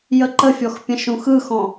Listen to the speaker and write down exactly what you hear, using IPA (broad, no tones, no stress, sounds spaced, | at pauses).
j ə ǃ ə fʲ ɔ x pʲ ə̃ ʃ ũ x ɯ x ɔ̃